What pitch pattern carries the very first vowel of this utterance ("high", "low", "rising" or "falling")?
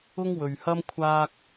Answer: high